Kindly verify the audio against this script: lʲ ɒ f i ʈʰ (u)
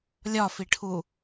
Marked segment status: correct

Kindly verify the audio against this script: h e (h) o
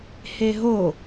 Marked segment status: incorrect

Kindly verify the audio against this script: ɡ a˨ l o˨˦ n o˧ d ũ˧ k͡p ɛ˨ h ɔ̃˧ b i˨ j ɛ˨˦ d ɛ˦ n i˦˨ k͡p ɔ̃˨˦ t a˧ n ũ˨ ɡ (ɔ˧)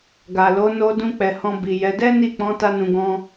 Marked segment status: incorrect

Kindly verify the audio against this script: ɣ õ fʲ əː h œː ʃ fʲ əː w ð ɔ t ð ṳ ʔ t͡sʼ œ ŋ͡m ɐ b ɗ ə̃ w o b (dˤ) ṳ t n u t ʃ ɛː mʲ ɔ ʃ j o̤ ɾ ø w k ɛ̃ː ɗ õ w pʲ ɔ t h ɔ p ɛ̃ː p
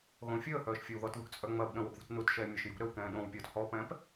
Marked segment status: incorrect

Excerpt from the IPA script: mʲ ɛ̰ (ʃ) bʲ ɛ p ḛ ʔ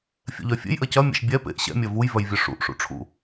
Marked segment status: correct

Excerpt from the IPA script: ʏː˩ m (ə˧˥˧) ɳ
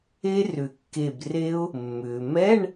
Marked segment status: incorrect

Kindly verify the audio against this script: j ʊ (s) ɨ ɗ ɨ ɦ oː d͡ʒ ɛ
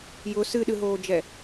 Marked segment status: correct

